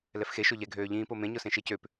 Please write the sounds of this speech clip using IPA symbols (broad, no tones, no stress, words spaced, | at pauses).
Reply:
lɛfxeʃo ʎɛɡʱøː ʎĩːpo mẽɲʊsẽ ʃecøp